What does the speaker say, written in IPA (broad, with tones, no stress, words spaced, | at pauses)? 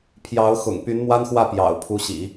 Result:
pʰjɑ˧˥ʊ̯ xʊ̰˨˩ŋpy˧˥nmwa˥nxwä˥˩ pjɑ̰˨˩ʊ̯pʰu˧˥ɕḭ˨˩˦